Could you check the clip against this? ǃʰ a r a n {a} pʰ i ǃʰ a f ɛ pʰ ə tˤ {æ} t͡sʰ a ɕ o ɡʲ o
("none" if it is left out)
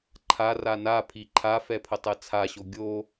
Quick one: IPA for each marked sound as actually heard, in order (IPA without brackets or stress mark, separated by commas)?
a, ɛ